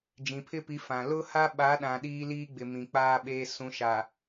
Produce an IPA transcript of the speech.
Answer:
d͡ʒĩ˨pʰɪ˦pi˨˦ fã˨ lʊ˦ha˦ɓa˨˦ɗã˨ ɗiː˦liː˦ɡ͡bɪ˨ mĩ˨k͡paː˦ ɓeː˦ sũ˨˦ʃa˨

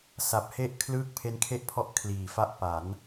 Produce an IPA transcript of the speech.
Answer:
sa˨˩p̚he˥˩ʔ kʰlɯː˥˩k̚pʰe˦˥nkʰe˥˩ʔpʰɔ˦˥ʔ kʰliː˩˦fa˦˥ʔ pa˩˦n

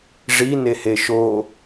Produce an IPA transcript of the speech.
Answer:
ʐi neheʃoː

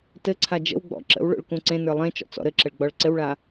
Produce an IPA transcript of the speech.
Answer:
tɘǀʰa d͡ʒə̰wɡ͡bɔ̰ ǁə̰wɭo̰ɭ kũǀẽnə˞ lˠẽ t͡ʃɔ̰t͡sɔ̰ɾɘǁəɭ ɡ͡bɔɭǀɘwɭa

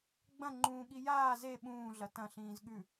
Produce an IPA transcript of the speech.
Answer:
ɡ͡bɐ̃ ŋ͡ǃũːɠijaː ze ɓũː ɮɐtɐ̃ ɬĩːzɠʉ

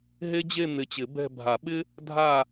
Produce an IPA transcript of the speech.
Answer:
ɦe˥d͡ʑe˥˧ n̪ɪ˧˩t͡ɕɪ˨˩˦ bɛ̤˥˧ bʱa˨˩˦ɓɪ˥ | dʱa˥˧

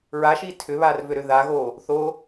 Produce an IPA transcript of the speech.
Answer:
ɹaʃi tʰʏβarvʏɾʏ ðaɣo | θo

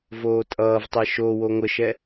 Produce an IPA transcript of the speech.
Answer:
voːtʼʌːvtˤɛ ʃo woŋʷəʃɛ

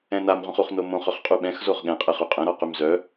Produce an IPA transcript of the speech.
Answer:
ɛ̃namʁʷə̃χ uχnomõχ œχqʼuɓɛ̃x zoχɠɛ̃qʼɛχ yqʼə̃ɾɔ qymzœ

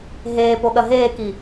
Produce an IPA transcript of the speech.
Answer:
ɦeːpoɠɐ ɦeːki

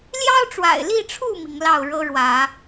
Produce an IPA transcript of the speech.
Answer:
ljɑ˦ʊ̯ʈ͡ʂwa̰˨˩ɪ̯li˥˨ʈ͡ʂʰu˥˨ mi˨˦ŋlɑ˥˨ʊ̯ ɻɤ˦ɻwä˨˦

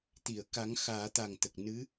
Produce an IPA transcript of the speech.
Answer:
t̪i˨˩˨ə̯ka˨˩˦ŋ xaː˨˩˦t̪a˨˩ŋt̪ə˨˩k̚ nɨ˧˥

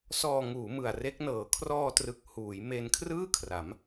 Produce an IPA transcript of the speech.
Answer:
sɔː˧ŋuː˩˦ mɯ˨˩a̯re˦˥k̚nɤː˨˩ kʰrɔː˧trɯ˨˩k̚ huː˩˦jme˧nkʰrɯː˥˩ kʰra˩˦m

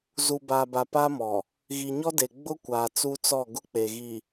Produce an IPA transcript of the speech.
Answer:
zu˨baː˨ba˨ pa˦mɔ˨ | ɣi˨ɲɔ˦de˨ ɡ͡bʊ˦kʷaː˨ t͡su˦t͡sɔ˦˨ɡʊ˦ k͡pe˨ɣi˨

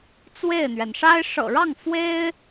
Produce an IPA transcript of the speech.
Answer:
t͡swe˥˩ɪ̯n̪ɥɛ˩n ʂa˥ɪ̯ ʂɤ̰˨˩ɻɑ˥˩ŋ fwe˥ɪ̯

